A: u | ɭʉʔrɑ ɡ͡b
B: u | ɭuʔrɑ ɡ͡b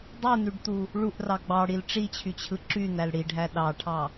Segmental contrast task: B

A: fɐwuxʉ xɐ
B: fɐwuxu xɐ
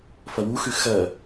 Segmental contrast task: A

